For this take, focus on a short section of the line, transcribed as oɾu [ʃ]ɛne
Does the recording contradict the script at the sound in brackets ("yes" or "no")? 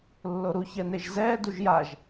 yes